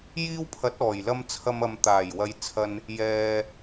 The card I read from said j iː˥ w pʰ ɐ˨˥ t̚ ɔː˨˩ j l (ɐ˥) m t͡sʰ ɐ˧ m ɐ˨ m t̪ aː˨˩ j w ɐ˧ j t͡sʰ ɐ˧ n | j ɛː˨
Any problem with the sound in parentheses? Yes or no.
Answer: no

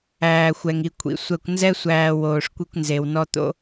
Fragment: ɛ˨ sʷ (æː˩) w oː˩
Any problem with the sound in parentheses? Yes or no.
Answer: no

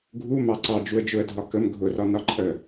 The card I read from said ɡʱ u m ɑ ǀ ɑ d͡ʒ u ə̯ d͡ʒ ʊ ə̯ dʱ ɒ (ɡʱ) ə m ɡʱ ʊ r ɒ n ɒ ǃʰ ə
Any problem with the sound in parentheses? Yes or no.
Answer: yes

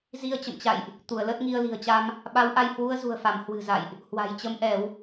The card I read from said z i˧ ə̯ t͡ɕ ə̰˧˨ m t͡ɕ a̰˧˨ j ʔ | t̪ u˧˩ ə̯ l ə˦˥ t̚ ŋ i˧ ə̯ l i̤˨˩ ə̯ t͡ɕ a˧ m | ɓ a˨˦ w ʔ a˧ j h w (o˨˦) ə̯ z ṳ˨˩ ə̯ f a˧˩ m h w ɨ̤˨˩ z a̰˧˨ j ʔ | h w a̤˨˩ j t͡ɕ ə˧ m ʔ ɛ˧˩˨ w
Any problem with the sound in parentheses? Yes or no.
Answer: yes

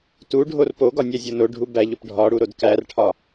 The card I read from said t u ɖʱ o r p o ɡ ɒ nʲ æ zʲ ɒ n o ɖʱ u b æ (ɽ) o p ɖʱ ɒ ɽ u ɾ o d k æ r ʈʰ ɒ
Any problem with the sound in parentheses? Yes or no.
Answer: yes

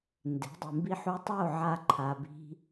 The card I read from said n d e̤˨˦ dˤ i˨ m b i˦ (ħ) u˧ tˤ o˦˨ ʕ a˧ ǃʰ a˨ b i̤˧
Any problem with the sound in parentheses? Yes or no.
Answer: no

